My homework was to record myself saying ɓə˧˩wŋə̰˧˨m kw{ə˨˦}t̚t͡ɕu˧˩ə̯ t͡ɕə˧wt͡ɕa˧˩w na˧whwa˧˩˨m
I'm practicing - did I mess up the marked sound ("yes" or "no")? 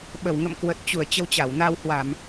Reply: yes